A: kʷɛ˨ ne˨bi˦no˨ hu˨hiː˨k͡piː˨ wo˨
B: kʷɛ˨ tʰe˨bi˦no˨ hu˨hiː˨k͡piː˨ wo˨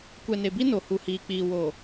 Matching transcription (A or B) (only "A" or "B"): A